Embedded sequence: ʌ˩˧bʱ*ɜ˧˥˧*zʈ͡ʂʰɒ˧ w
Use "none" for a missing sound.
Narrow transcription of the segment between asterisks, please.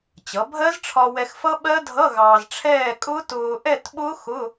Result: ɜ˦˥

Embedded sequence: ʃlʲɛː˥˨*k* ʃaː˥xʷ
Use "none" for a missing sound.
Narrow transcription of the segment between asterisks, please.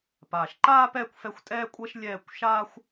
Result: kʷ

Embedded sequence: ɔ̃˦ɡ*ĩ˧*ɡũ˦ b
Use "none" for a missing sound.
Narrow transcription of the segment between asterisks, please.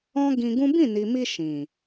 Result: ĩ˧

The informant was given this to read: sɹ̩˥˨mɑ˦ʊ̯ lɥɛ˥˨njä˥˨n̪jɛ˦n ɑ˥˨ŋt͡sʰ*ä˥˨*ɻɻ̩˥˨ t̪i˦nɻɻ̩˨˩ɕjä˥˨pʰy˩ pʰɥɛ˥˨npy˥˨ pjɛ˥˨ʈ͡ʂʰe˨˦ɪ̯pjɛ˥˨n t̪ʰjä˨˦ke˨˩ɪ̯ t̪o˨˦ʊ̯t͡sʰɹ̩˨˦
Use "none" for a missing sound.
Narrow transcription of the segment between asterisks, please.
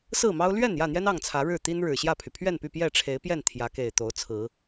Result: ä˨˦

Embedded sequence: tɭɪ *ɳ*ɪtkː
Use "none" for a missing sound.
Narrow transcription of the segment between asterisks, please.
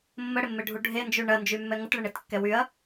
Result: ɳ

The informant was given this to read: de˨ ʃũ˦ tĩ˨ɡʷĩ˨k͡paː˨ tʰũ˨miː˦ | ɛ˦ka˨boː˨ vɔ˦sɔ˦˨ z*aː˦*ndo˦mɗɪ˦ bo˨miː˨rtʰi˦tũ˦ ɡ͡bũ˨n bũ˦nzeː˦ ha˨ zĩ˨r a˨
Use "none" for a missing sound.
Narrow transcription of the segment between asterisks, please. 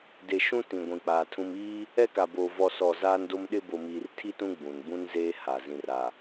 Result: aː˦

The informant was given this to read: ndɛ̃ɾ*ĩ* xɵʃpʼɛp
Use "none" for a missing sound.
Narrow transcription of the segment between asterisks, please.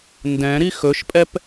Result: i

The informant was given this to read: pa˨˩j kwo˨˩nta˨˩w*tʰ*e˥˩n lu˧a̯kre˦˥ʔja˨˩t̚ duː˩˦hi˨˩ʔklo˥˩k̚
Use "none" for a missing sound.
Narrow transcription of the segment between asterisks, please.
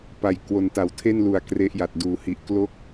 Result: tʰ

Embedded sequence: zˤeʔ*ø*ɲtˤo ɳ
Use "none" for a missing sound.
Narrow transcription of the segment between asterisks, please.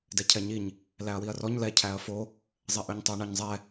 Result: ø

